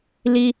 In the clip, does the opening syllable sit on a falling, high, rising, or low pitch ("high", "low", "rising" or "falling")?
high